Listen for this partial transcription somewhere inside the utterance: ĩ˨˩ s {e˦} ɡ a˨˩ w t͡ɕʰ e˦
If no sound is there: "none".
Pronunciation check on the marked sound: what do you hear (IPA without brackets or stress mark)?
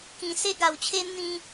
e˦